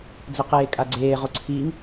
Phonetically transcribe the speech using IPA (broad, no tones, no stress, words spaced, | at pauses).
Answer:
d͡zəqeːkʼaɡ͡ǀeː ʁoǀʰiŋ